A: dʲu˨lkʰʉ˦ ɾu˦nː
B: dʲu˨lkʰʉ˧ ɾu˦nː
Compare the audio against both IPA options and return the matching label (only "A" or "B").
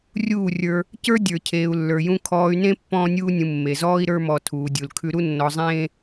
B